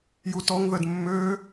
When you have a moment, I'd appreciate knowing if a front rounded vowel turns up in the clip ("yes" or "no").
yes